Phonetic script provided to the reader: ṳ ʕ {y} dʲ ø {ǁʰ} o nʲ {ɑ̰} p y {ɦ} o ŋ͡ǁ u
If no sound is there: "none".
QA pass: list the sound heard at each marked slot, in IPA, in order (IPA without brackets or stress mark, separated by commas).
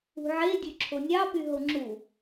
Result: e, ǁʰ, ɑ, ɦ